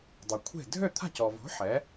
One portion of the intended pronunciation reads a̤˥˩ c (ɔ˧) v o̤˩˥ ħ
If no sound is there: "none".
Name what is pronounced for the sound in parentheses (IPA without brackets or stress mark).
ɔ˩